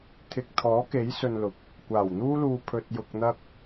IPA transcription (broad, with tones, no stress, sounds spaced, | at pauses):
t̪ʰ ɪ˨ k̚ t̪ʰ ɔː˨˥ k e˨˥ j s ɵ˧ n l ʊ˨ k̚ | kʷ aː˨˩ w n̪ uː˥ l uː˧ pʰ ɵ˧ t̚ j ʊ˧ k̚ n̪ ɐ˥ k̚